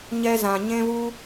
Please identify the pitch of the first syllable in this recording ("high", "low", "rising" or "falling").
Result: high